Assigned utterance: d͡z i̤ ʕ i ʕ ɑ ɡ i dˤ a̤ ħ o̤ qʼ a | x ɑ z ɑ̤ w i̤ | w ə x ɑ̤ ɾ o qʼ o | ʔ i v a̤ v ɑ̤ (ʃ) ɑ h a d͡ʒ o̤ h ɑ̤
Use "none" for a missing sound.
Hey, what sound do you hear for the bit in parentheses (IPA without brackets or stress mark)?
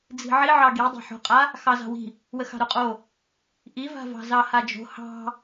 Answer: z